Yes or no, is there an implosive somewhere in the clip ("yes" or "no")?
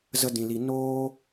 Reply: no